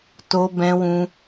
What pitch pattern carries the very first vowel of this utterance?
high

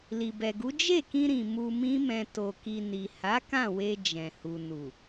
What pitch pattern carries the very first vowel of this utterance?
low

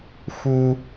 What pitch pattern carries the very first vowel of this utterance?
high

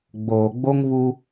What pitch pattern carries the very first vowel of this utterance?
low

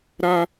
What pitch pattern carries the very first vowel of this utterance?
high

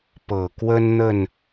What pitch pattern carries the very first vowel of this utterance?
low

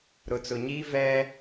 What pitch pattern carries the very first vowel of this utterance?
low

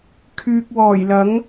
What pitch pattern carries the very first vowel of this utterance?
low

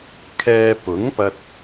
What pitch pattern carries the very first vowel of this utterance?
low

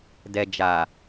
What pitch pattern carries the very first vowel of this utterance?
low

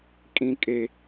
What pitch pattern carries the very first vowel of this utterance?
high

